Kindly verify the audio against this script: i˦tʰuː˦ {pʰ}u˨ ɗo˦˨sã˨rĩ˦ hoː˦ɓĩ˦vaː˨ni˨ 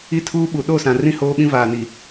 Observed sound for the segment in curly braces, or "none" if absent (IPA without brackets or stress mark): ɓ